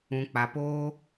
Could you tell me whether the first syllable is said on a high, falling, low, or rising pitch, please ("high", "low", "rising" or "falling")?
low